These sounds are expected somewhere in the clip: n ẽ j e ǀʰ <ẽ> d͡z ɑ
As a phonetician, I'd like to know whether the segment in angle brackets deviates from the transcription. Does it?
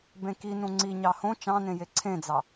no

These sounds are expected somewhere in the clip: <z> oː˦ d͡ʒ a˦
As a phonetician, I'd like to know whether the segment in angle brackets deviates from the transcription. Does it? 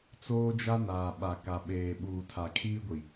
yes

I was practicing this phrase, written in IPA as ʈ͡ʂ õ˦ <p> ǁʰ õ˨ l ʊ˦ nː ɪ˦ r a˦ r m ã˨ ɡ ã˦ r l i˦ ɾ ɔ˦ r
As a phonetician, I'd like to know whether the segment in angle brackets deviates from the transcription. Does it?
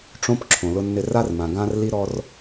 no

